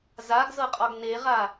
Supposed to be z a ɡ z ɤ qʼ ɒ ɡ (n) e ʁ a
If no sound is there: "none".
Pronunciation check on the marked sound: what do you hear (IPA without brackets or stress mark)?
n